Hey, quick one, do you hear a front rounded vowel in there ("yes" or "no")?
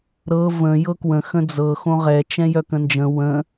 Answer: yes